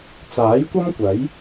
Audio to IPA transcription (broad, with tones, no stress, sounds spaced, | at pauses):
t͡s aː˨˥ j kʷ ɐ˥ m kʷ ɐ˨˥ j